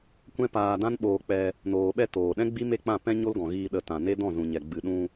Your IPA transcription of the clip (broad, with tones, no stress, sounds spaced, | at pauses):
kʷ ɛ̃˦ p aː˧ d ã˦ n ɓ oː˧ k͡p ɛ˧ | n oː˨ ɓ ɛ˧ t oː˨ ɗ ɛ̃˦ ɡ͡b i˦ m e˦˨ k͡p ã˦˨ p ɛ̃˦ ɲ o˦ l ɡ ɔ̃˨ ɣ iː˧ ɗ ə˧ t ã˨ n e˦ d ɔ̃˦˨ z ũ˨ ɲ ɛ˨ ɡ͡b ɨ˨ ɗ ũ˧